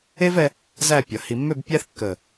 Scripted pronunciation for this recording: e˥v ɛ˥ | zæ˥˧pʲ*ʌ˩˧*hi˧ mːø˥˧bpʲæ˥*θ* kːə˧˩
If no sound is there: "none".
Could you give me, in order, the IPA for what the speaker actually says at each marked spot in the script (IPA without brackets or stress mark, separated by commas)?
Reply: ʌ˩˧, θ